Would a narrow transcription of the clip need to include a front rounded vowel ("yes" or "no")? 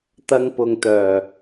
yes